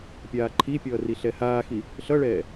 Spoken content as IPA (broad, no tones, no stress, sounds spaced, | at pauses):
pʲ aː ǃʰ i pʲ ʌː r i ɬ ɛ h aː x i | ɬ ʌ ɭ ɛː